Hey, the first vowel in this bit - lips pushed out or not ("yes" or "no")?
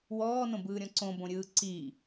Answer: yes